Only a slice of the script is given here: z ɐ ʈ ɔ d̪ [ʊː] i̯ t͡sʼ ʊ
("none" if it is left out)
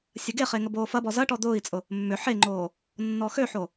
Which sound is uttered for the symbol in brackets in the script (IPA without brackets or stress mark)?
ʊː